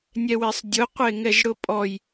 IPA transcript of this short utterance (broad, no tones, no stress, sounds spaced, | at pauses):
nʲ ɛ w e sˤ dʲ ʊ qʷ e ŋ ɛ ʒ ɽ ʊ pʼ ɔ j